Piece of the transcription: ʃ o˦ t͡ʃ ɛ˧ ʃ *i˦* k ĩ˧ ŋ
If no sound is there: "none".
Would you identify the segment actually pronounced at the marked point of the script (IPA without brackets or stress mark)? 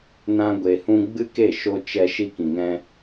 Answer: i˦